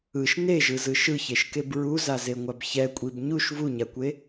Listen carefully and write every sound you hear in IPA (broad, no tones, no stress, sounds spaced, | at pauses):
ɯ ʃ n e ʒ ɯ z ɯ ʃ ɯ ç e ʃ k e b ɹ u z a z e ŋʷ a b ç ɛ kʷʼ i b ɲ u ʃ v u ɲ a kʷ e